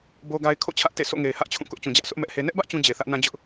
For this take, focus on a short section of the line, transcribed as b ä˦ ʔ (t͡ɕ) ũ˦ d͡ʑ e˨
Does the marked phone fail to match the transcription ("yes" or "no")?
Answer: no